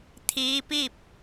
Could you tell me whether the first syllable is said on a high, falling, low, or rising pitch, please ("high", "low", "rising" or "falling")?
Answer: rising